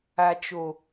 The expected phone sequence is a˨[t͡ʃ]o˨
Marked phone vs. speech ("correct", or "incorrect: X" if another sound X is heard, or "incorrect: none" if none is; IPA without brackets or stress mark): correct